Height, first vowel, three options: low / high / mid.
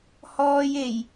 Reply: mid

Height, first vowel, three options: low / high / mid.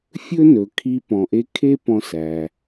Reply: mid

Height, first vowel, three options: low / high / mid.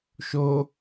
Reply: mid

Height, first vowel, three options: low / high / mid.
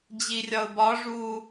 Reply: high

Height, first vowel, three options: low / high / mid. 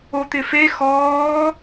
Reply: mid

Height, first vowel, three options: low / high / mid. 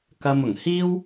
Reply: low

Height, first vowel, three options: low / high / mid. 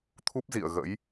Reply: high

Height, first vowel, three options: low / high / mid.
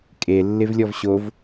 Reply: mid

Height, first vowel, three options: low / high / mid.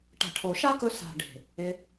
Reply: low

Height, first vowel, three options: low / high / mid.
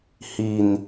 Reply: high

